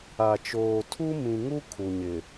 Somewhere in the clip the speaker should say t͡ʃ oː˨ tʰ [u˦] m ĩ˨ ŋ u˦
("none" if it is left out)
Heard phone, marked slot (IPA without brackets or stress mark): u˦